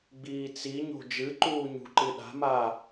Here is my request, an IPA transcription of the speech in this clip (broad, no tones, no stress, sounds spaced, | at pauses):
ɡ͡b iː t͡s i ɲ o̤ d͡ʒ ɨ ǃ uː ɲ ṳ ǃ ɨ ɗ a̤ m aː